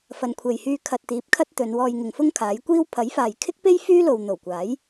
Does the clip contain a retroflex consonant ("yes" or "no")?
no